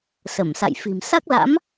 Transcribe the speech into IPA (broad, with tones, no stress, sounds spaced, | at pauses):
s ə˧˩ m s a̰˧˨ j f i̤˨˩ m s a˦˥ k̚ l a̰˧˥ m